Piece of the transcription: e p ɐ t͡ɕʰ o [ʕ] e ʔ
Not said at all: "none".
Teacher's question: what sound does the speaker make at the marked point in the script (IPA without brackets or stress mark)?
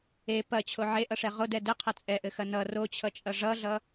ʕ